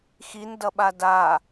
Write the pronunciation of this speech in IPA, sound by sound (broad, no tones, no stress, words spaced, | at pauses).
xindʌɓa da